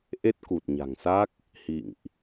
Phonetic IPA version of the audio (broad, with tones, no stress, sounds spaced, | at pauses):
ʔ e˦˥ t̚ k u˨˩ t̚ ɲ a̤˨˩ ŋ s a˦˥ k̚ | h ḭ˧˨ ŋ ʔ